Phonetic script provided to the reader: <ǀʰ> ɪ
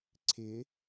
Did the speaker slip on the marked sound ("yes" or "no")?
no